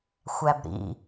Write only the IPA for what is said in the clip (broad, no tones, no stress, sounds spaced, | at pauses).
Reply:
xʷ æ b ɾ ḭ